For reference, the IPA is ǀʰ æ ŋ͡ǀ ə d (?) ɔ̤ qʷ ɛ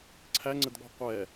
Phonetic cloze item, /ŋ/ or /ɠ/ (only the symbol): ɠ